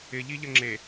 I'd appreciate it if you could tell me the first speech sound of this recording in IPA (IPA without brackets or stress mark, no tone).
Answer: ɪ